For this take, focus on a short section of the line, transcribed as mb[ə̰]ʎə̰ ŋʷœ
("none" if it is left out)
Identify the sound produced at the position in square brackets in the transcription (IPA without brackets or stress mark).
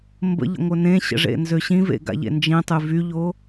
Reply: ə̰